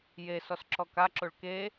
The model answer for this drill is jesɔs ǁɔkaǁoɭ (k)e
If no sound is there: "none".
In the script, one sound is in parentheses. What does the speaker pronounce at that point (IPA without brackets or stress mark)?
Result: k